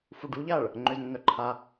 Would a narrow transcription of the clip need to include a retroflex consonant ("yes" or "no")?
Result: yes